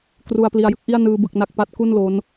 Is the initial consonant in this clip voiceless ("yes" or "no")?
yes